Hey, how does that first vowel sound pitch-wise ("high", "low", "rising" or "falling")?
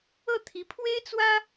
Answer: falling